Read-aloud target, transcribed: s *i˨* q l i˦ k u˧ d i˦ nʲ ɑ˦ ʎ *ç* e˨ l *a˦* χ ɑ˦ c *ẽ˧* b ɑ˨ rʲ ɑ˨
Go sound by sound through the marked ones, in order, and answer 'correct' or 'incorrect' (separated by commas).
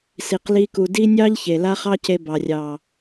incorrect, correct, correct, incorrect